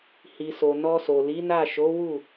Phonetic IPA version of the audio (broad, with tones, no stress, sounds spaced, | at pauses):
h i˨ s o˨ n ɔ˧ s o˨ l i˨˦ n a˦˨ ʃ o˨˦ w u˦˨